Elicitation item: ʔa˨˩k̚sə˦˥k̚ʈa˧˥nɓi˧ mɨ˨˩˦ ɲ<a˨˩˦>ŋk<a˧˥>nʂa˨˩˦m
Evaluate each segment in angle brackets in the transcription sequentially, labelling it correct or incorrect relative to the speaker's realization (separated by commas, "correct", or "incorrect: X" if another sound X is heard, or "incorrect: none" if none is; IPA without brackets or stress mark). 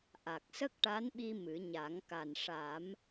correct, incorrect: a˨˩